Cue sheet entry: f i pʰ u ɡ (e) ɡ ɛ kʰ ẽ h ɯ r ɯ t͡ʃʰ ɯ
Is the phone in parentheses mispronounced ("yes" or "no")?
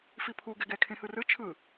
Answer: yes